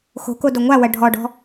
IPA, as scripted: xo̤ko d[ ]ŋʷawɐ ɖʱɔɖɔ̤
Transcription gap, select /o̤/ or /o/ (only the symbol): o